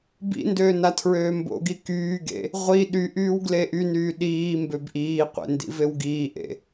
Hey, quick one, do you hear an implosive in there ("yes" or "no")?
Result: yes